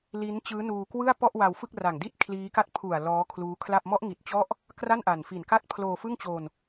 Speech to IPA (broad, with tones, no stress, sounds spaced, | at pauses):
l i˦˥ n t͡ɕ ɯː˦˥ n uː˧ k w ɯ˥˩ a̯ p ɔ˥˩ ʔ w a˧ w f ɯ˥˩ k̚ r a˨˩ ŋ d i˥˩ t̚ kʰ l iː˦˥ k a˥˩ t̚ pʰ u˨˩ a̯ l ɔː˦˥ kʰ l uː˦˥ kʰ l a˥˩ p̚ m ɔ˦˥ ʔ ŋ i˨˩ t̚ t͡ɕ ɔ˦˥ ʔ | k r a˥˩ n ʔ a˨˩ n f i˨˩ n k a˥˩ t̚ pʰ l oː˧ f ɯ˥˩ ŋ t͡ɕ o˧ n